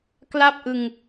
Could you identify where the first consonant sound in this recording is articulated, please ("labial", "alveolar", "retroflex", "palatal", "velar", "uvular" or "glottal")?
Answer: velar